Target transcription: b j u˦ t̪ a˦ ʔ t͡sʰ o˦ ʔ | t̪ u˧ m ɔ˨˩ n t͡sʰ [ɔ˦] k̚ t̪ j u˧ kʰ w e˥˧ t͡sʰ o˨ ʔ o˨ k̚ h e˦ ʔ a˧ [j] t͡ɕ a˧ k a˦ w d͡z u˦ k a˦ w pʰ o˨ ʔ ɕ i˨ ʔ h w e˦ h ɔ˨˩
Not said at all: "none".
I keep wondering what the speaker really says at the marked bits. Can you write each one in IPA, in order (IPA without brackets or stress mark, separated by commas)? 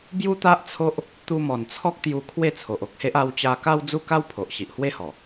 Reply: ɔ˦, w